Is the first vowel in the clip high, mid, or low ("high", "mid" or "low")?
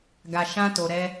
low